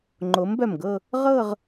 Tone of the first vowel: rising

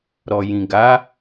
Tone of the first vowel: low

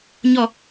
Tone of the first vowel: falling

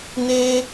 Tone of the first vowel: high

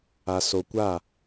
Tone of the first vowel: low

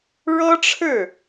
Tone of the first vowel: high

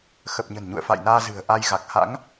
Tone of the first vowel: low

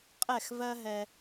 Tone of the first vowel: falling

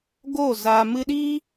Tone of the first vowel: falling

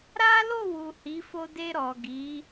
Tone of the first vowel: high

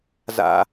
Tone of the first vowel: low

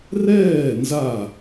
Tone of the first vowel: falling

